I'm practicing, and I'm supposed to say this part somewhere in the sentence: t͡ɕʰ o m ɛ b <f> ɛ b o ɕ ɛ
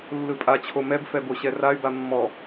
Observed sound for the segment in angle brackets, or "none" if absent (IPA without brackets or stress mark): f